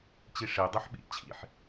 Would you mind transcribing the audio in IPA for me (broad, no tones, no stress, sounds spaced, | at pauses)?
t͡ɕ i ʂ e dˤ ø ħ ɓ ḭ t͡ɕʰ ḭ ħ